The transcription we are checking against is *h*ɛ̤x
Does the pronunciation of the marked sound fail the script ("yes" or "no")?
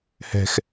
no